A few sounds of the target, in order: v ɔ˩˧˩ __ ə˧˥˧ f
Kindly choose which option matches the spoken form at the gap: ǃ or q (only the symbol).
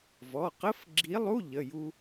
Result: q